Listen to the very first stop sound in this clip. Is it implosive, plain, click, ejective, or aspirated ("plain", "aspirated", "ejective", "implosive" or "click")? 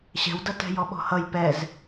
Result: plain